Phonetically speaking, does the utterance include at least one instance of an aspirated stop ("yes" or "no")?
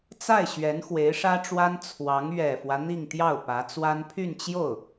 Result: yes